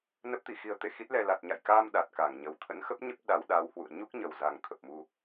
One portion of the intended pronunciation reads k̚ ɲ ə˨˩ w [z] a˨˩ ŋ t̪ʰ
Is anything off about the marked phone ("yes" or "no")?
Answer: no